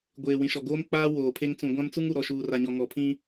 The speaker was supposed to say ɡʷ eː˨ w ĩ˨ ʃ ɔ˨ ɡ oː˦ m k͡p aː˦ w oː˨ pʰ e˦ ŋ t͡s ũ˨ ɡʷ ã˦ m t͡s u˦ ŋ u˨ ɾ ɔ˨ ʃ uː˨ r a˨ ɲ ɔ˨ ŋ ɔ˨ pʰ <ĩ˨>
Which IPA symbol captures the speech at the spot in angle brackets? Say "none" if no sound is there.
ĩ˦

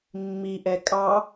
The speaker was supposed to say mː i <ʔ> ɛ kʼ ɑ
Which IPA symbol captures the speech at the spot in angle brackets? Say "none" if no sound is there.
ʔ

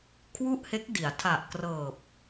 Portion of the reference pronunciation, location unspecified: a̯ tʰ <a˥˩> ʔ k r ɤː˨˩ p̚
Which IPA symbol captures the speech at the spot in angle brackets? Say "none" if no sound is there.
a˨˩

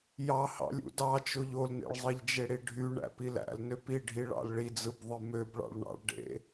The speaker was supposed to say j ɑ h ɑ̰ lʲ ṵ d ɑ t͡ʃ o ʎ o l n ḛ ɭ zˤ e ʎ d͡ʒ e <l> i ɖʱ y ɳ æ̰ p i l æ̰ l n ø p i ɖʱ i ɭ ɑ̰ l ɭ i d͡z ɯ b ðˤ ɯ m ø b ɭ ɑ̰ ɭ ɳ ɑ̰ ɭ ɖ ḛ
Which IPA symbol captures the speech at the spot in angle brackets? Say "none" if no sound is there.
ɽ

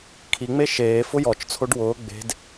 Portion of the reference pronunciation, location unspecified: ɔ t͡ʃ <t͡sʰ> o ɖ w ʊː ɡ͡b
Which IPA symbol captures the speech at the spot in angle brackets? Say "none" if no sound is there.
t͡sʰ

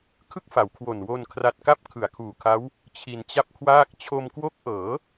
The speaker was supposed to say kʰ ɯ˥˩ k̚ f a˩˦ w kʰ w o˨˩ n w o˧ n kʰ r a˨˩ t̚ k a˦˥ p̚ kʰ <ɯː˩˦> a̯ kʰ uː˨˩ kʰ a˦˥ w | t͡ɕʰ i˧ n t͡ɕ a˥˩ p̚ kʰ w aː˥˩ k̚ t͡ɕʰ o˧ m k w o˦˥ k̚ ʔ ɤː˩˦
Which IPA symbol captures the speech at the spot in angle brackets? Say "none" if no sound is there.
ɯ˩˦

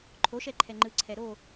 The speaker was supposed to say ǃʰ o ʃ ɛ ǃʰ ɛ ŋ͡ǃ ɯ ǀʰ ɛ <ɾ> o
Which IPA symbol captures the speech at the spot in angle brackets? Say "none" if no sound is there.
ɾ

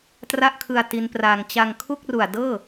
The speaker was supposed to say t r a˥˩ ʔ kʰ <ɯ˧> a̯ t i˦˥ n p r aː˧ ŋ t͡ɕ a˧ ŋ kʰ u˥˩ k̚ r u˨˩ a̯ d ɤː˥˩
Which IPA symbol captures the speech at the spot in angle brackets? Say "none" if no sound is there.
ɯ˧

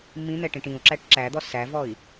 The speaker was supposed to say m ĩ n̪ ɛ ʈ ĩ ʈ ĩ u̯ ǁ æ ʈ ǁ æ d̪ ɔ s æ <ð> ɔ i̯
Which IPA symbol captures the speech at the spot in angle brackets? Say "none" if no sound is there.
v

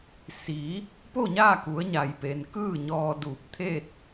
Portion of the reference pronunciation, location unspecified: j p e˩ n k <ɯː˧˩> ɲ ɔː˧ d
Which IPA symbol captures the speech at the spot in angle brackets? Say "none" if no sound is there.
ɯː˥˨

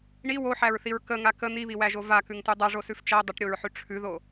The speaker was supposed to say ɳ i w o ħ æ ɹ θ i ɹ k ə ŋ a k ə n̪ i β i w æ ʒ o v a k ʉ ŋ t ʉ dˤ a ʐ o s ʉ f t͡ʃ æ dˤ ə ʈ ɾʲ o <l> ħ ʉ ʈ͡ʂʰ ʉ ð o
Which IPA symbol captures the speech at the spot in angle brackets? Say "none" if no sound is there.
ɹ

